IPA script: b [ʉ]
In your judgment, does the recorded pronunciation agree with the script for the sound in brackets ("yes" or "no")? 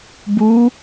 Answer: no